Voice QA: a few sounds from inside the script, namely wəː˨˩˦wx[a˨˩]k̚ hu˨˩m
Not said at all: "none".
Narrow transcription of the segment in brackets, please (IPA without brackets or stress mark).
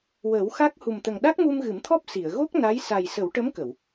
a˦˥